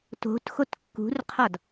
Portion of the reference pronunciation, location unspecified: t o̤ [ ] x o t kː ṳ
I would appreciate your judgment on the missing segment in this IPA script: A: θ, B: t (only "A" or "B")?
B